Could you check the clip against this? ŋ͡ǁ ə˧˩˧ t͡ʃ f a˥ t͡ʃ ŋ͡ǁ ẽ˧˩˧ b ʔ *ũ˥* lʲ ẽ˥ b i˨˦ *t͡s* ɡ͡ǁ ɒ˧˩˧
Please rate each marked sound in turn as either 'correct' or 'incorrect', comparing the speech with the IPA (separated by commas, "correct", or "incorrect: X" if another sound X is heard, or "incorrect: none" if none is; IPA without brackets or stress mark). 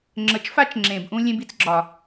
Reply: correct, correct